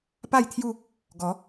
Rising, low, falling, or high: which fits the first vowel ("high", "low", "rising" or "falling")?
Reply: falling